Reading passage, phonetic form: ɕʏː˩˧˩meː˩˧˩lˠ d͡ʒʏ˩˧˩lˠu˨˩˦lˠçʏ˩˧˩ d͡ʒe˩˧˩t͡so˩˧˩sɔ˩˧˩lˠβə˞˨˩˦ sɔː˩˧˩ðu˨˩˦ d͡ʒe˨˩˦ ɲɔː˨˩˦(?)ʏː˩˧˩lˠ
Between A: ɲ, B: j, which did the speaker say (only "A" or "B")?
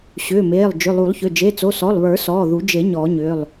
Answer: A